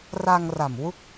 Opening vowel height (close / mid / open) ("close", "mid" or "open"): open